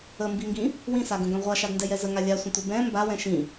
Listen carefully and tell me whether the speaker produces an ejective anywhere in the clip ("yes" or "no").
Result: no